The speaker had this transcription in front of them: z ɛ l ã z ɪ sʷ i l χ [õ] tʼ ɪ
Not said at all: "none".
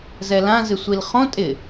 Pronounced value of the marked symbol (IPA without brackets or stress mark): õ